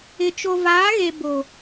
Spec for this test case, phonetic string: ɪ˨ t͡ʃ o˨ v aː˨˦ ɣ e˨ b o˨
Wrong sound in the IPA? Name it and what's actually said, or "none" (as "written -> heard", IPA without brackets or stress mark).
none